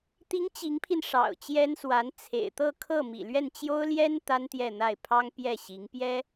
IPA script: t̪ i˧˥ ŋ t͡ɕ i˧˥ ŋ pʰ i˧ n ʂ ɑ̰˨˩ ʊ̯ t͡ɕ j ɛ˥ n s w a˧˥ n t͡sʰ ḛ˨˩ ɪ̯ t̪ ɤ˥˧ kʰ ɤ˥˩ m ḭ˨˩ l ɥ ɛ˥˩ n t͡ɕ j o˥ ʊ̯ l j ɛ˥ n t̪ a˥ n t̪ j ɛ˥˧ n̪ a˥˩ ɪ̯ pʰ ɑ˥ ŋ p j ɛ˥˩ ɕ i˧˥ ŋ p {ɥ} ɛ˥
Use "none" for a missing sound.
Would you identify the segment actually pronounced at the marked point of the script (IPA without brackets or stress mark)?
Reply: j